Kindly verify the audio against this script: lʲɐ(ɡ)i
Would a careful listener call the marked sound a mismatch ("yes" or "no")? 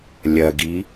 no